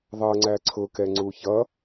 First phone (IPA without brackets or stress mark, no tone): ðˤ